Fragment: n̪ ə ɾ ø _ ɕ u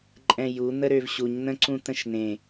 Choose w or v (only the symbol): v